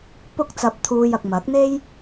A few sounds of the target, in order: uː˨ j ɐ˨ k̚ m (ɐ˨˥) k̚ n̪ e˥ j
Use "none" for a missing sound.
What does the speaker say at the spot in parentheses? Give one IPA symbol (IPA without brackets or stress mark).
ɐ˨˥